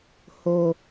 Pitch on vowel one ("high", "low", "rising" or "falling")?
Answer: low